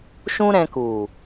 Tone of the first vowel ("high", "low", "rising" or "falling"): high